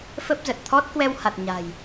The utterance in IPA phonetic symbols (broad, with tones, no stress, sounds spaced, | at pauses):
f ə˦˥ p̚ z ə˨˩ t̚ t̪ʰ ɔ˦˥ t̚ k w ɛ˧ w h a˨˩ t̚ ɲ a̤ː˨˩ j